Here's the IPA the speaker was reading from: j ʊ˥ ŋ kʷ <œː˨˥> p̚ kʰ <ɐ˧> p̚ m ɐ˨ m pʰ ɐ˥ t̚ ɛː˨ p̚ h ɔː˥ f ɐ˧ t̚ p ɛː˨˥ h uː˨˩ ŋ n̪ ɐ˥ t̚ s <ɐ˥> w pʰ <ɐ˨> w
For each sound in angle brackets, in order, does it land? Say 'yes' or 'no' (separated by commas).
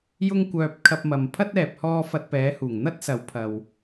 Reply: no, yes, no, yes